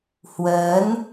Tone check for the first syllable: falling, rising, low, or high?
rising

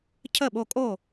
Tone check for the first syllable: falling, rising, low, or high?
falling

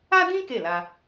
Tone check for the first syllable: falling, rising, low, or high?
high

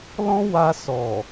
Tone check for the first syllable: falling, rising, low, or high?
high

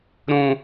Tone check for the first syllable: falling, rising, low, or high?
high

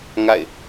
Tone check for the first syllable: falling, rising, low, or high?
falling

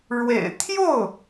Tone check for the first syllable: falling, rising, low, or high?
low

